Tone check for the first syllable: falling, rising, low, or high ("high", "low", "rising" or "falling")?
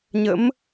rising